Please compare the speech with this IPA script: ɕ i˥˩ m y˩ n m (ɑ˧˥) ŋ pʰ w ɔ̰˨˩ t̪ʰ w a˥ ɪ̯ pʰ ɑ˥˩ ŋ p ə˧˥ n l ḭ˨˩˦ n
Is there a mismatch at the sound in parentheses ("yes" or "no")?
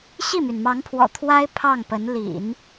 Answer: no